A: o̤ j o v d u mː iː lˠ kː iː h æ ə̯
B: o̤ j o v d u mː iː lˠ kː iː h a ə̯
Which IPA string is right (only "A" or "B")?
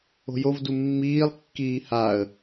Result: B